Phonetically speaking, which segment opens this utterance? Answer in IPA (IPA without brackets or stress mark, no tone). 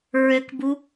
ɹ